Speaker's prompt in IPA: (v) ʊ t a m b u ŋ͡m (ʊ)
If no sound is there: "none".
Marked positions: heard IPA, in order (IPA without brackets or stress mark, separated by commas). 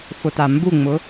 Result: f, ʊ